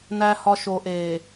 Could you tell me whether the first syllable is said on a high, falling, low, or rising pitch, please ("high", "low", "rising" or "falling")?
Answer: low